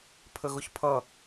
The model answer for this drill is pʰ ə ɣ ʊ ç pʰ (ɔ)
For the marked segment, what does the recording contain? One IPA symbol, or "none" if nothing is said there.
ʌ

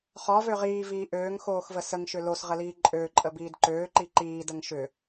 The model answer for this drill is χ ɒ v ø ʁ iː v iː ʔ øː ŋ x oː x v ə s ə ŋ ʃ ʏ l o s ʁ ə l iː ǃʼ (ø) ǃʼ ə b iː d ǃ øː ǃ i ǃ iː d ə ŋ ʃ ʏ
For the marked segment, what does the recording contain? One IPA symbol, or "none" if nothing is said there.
ø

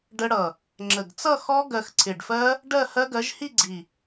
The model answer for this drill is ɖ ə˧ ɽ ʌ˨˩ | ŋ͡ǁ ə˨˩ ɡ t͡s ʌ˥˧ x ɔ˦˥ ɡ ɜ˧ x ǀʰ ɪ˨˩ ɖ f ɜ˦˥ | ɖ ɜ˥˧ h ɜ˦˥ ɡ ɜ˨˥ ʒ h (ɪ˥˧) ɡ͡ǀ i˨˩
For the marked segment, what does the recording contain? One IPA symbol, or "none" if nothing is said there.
i˥˧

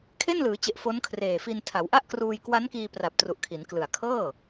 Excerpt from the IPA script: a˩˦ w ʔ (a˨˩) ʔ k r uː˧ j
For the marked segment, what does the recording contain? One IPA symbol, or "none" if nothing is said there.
a˥˩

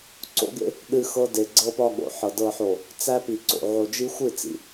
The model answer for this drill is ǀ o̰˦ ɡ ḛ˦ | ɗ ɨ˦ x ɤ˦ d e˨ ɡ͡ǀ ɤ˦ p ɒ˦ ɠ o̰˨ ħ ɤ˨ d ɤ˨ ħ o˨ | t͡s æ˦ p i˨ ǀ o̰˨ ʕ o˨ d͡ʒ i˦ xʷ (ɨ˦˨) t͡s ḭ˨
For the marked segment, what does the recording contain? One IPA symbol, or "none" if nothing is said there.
ɨ˦˨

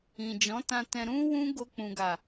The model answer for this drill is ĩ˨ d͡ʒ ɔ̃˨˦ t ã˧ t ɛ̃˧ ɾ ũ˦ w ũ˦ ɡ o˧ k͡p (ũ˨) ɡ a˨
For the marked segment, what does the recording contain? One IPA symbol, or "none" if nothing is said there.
ũ˨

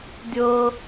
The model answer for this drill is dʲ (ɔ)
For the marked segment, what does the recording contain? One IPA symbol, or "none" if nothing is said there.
ɤ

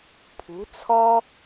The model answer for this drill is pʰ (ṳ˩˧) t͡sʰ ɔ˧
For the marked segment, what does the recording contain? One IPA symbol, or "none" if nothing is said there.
ṳ˩˧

